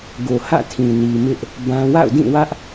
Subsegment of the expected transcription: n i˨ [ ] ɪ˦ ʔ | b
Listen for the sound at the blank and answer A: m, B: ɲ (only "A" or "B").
A